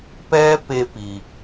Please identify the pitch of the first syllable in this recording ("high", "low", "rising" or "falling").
high